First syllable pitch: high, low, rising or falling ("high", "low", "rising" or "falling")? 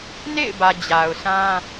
falling